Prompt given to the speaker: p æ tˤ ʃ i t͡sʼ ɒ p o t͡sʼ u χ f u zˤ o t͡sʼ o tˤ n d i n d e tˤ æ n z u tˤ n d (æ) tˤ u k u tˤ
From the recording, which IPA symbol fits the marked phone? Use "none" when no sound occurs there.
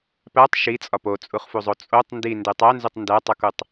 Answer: æ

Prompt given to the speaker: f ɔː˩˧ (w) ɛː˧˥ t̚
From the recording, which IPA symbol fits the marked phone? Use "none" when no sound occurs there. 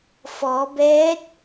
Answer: b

